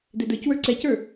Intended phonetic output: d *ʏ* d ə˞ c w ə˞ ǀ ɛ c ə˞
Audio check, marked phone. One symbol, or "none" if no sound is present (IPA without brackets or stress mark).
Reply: ɛ